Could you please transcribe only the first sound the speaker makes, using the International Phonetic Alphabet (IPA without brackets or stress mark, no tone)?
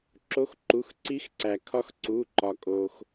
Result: ǁ